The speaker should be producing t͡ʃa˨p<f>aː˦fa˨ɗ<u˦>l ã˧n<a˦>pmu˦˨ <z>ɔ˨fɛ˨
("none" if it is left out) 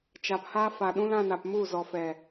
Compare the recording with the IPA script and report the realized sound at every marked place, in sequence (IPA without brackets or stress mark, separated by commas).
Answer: h, ũ˦, a˨, z